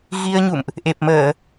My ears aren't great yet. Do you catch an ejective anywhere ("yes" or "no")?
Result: no